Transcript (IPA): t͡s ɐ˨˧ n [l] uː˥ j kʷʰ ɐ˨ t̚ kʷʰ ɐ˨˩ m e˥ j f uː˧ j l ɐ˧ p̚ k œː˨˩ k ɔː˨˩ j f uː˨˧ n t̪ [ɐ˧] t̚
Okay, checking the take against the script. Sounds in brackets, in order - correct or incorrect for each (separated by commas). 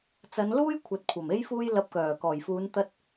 correct, correct